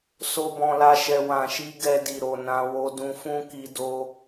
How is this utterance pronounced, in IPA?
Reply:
s o˦ b ɔ̃˧ l a˦ ʃ ɛ˧ w ã˨ ʃ i˧ ɡ ɛ˧ d i˨ ɾ o˨ n ã˧ w o˧ d ũ˧ f ũ˦ k i˧ d o˧

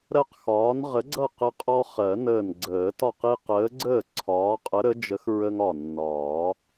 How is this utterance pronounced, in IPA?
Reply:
ɾ ɜ˦ q x ɒː˨˥ n ʁ ə˨˥ ɡ͡ǀ ʌ˥˩ q ə˦ qʼ ɔ˦ χ ɜ˨˩˦ n əː˧˩ n ɡ͡ǀ əː˨˩˦ t ɒ˥˩ q i˦ q əː˨˥ ɡ͡ǀ əː˥˩ ǀʰ ɒː˨˥ qʼ ə˨˥ ɾ ə˨˥ d͡ʒ ə˨˥ x ɹ ə˦ ŋ ɒ˧˩ nː ɒː˨˩˦

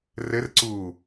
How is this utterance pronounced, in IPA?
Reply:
r ɘ r ǀ u

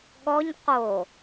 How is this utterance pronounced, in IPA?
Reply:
ɠ ɔ ɲ q o

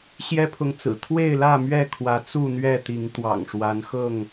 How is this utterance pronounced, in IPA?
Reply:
ɕ j ɛ˦ pʰ ʊ˨ ŋ t͡s ɹ̩˨˩ t̪ʰ w e˥˨ ɪ̯ l ä˥˨ m ɥ ɛ˥˨ kʰ w ä˨˦ t͡s u˥˨ n̪ ɥ ɛ˥˨ t̪ i˨˦ ŋ t̪ w ɑ̰˨˩ ŋ ʂ w a˨˦ n x ɤ˥˨ ŋ

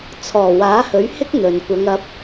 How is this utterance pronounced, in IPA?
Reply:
t͡sʰ ɔː˨˩ w aː˨˥ h ɵ˨˥ ɥ h ɪ˥ k̚ n̪ ɵ˨ n kʷ ɐ˨˧ ŋ ɐ˨˥ p̚

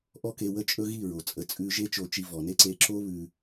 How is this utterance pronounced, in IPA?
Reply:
ʔ ɔ˦ k e˧ w ə˦ t͡ʃʼ ɵ˦ ɣ i˦˨ ɹ o˨ t͡sʼ ə˧ t͡sʼ ʉ˧ ʒ e˦ t͡ʃ o˧ t͡ʃ i˧ v ɔ˨ n e˦ ǀ e˧ ǁ o˦ β ʉ˧

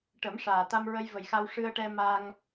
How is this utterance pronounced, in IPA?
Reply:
ʈ ə˨˩˦ m ʂ aː˨˩ t̪ a˧ m ɹ ə˧ j v ə˨˩ j x a˧ w ʂ ɨ˧ ə̯ ʈ ɛ˧ m a˧ ŋ

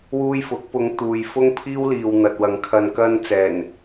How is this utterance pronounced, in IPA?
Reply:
w uː˥ j f ʊ˨˥ k̚ p ʊ˨˧ ŋ t̪ uː˨ j f ʊ˥ ŋ pʰ iː˥ w l iː˨ w n̪ ɐ˨ t̚ w ɐ˨˧ ŋ kʰ ɐ˨ n k ɐ˧ n t͡s ɛː˨˩ n

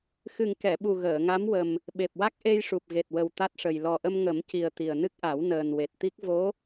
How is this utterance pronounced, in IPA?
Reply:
x ɨ˨˩ ŋ k ɛ˨˩˨ ɓ u˨˩ ɣ əː˨˩˨ ŋ a˧˥ m w ə˨˩ m | ɓ e˨˩ p̚ w a˦˥ k̚ ʔ e˧ j ʂ u˨˩ p̚ ɣ e˨˩ t̚ w ə˨˩ w t̪ a˦˥ t̚ ʂ ə˨˩ j l ɔ˨˩ ʔ ə˧ m ŋ ə˨˩˦ m c i˨˩ ə̯ t̪ i˨˩ ə̯ n ɨ˦˥ k̚ ʔ a˨˩˦ w n əː˨˩ n w e˨˩ t̚ t̪ i˦˥ k̚ v o˧˥

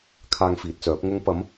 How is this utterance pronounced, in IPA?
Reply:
kʰ aː˧ ŋ f iː˨˥ t̚ t͡s œː˨˥ p̚ ŋ ʊ˨˧ ŋ p ɐ˨˧ m

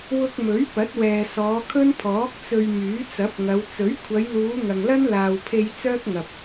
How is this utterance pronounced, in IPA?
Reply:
w ʊ˧ k̚ m ɵ˨˥ ɥ p ɐ˨˥ t̚ w ɛː˨ s ɔː˨˧ kʰ ɵ˥ n pʰ ɔː˨˥ k̚ t͡s ɵ˧ ɥ m yː˨˥ t͡s ɐ˨˥ p̚ ŋ ɐ˨˧ w t͡s ɵ˨˥ ɥ kʷʰ ɐ˨˧ j l uː˨˧ ŋ ɐ˨ ŋ l ɐ˥ n l aː˨ w pʰ e˧ j t͡s œː˥ k̚ ŋ ɐ˨ p̚

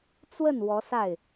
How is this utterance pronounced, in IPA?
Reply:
t͡s w ə˥˩ n w ɔ˧˥ s a˥˩ ɪ̯

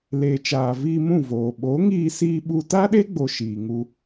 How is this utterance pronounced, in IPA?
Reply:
l eː˨ t͡ʃ aː˨ v iː˧ m ũ˦˨ v oː˨ ɓ o˨˦ ŋ iː˧ s iː˧ ɓ u˦ t a˦ ɗ e˦ ɡ͡b o˨ ʃ iː˨ ŋ u˧

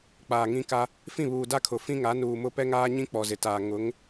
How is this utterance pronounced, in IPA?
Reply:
k͡p aː˨ ŋ ĩ˦ k a˦ | f ĩ˦˨ β uː˨ d a˦ kʰ ʊ˨ f ĩ˦ ŋ a˨˦ n uː˨ m ʊ˦ p ɛ˦ ŋ aː˦ ɲ ĩ˦ k͡p ɔ˨ z ɪ˨ t aː˨ ŋ ʊ˨˦ ŋ

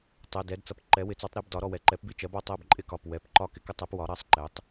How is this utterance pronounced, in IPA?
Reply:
tˤ ɛ˩˧˩ d ɛ˩˥ d t͡s ʌ˩˧˩ p ǃ ɛ˩˥ w ɪ˩˥ t͡s ɔ˩˥ tˤ ɾ i˦˨ b d ɒ˩˥ ɾ ɔ˦˨ w ɛ˩˥ ǃ ɛ˩˥ p b i˦˨ t͡ʃ ɜ˩˥ b ɒ˦˨ tˤ ɜ˦˨ b ǃʼ ɪ˦˨ k ɒ˩˧˩ p w ɛ˩˧˩ p ǃ ɒ˦˨ k ɪ˩˥ k ʌ˦˨ tˤ ɛ˩˥ p w ɒ˩˥ ɾ ɜ˩˥ sˤ ǃ ɛ˩˥ tˤ

